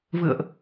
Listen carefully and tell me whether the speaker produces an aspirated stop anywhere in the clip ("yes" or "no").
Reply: no